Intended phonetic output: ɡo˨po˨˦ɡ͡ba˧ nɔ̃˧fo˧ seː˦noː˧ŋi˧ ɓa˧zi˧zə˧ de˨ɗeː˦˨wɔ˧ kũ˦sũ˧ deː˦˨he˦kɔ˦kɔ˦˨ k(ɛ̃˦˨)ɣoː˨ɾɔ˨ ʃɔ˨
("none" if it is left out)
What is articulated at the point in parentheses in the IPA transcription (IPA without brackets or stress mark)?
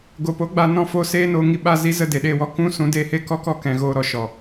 ɛ̃˨